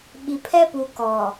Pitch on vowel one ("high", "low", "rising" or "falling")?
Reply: low